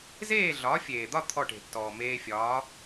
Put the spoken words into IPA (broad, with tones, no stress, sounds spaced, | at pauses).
z eː˥˩ ɮ ɒː˩˥ fʲ eː˩ d̪ ɒ˥˩ t̪ʰ ɔ˥˩ ʈ e̤˩ tː ɔː˩ m eː˧ fʲ ɒː˩˥